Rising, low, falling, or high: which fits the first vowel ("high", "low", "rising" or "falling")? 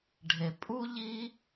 low